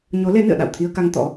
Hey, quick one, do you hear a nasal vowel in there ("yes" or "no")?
no